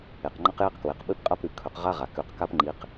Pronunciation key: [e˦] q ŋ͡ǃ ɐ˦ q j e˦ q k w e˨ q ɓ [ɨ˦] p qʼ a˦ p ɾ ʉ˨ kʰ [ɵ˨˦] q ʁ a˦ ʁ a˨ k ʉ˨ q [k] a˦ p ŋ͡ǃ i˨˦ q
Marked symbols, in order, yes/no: no, yes, yes, yes

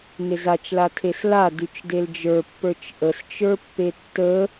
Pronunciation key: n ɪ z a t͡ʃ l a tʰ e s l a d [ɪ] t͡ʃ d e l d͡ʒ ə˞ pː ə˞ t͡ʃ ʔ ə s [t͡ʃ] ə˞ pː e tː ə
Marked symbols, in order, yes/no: no, yes

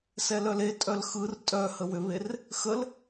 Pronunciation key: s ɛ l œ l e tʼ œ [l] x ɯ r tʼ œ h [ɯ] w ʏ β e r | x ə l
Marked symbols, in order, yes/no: yes, no

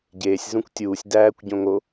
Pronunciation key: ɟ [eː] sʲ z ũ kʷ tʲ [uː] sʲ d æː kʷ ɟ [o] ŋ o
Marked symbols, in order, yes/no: yes, yes, no

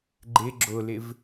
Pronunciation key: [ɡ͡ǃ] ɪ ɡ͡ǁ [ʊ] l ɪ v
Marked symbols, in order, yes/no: yes, yes

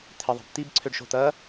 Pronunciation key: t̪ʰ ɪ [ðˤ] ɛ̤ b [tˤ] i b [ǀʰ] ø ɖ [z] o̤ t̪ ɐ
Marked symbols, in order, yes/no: yes, no, yes, no

